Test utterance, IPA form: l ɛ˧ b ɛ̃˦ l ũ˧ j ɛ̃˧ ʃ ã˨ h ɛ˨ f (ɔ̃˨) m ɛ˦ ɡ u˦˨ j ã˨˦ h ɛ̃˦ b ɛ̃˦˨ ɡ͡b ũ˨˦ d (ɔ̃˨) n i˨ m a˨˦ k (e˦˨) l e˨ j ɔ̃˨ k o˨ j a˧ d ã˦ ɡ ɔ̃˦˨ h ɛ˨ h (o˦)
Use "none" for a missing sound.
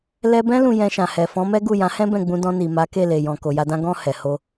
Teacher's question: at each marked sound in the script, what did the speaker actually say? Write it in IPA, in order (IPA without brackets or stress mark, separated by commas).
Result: ɔ̃˨˦, ɔ̃˧, e˦˨, o˧